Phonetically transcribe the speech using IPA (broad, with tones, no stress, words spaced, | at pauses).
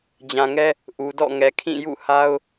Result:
d͡ʑã˨ŋɛ˦ | ʔu˨dɔ̰˦˨ŋɛ˨ kʰĩ˦˨jṵ˦˨ha˦ʊ̯